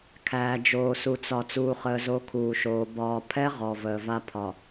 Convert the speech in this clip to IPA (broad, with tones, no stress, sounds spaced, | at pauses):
kʰ æː˨ d͡ʒ oː˨ s u˨ t͡s ɒ˨ t͡s uː˨ χ əː˨ z o˨˦ kʰ uː˨ ʃ oː˨ b ɒː˨ pʰ ɛ˦ ʁ ɔ˨ v əː˨ v a˦ pʰ ɒ˨